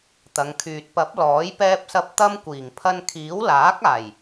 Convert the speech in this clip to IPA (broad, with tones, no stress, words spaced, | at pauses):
t̪ɐ˨˧ŋkʰyː˨t̚ pɐ˨˥p̚ lɔː˨˥j pɛː˧p̚sɐ˧p̚ t̪ɐ˥mkʷiː˨˩ŋ pʰɐ˧nkʰiː˨˥w laː˨˥k̚aː˨˩j